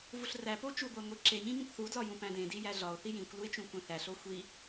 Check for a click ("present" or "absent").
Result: present